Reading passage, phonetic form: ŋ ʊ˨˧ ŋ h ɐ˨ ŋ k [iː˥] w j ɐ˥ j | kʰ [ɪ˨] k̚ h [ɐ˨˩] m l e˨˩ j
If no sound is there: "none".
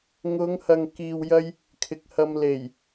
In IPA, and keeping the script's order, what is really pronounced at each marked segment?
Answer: iː˧, ɪ˨, ɐ˧

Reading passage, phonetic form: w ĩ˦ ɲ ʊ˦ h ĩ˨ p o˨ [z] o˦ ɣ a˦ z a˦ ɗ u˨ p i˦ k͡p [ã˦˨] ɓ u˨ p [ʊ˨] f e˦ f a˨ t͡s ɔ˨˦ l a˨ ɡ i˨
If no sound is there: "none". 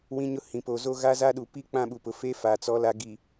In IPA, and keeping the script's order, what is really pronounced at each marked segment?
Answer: z, ã˦˨, ʊ˨

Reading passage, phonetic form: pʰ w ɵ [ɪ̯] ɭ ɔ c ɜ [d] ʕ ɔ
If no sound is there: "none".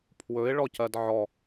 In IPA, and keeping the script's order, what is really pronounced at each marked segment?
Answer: ɪ̯, d

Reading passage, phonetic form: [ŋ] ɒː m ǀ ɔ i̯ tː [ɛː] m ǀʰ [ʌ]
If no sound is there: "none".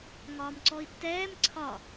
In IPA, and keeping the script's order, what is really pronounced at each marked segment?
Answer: ŋ, ɛː, ɒ

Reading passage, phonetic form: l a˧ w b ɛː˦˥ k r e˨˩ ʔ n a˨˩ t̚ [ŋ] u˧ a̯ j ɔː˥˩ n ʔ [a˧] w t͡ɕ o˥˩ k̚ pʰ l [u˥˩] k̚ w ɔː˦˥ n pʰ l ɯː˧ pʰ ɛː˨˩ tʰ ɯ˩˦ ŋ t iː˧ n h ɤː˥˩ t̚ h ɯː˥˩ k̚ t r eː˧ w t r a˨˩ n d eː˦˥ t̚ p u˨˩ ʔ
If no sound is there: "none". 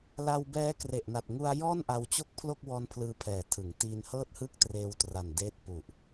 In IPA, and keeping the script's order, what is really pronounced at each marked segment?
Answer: ŋ, a˧, o˥˩

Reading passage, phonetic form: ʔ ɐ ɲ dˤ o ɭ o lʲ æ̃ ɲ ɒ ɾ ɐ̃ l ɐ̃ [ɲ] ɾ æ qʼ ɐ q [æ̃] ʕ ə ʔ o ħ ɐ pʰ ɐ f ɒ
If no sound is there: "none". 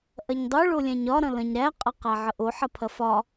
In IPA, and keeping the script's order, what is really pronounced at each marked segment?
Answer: ɲ, æ

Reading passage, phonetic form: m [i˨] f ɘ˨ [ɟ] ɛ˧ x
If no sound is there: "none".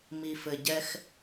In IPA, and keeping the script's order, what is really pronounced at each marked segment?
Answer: i˨, ɟ

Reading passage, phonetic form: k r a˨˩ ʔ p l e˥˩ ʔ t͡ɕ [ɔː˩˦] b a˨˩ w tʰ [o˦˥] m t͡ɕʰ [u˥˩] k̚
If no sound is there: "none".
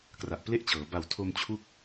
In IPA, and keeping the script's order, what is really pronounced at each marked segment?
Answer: ɤː˩˦, o˧, u˦˥

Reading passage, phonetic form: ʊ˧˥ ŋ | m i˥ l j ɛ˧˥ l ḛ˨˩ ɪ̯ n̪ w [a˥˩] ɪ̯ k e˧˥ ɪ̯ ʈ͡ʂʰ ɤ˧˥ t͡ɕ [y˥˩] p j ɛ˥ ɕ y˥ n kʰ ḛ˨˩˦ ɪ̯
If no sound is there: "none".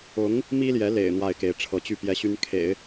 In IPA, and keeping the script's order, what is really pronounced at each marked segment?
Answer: a˥˩, y˥˩

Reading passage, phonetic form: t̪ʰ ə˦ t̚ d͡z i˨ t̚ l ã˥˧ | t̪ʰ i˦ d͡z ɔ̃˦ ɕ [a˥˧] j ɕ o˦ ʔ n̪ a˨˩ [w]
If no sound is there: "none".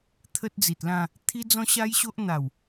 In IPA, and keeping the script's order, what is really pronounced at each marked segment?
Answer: a˦, w

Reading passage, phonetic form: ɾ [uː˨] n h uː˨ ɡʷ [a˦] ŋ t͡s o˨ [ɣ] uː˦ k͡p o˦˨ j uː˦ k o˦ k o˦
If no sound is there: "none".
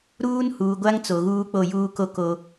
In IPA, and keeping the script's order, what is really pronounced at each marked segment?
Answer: uː˦, a˦, ɣ

